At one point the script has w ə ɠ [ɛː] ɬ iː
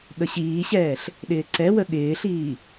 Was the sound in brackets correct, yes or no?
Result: no